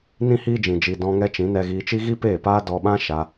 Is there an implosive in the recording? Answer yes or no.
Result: yes